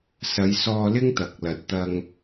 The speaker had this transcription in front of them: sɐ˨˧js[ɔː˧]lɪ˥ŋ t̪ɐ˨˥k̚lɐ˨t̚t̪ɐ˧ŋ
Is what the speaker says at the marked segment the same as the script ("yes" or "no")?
yes